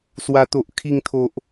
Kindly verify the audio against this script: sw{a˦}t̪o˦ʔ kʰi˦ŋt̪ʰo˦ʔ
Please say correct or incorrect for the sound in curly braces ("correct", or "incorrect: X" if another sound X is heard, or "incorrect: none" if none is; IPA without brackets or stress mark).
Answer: correct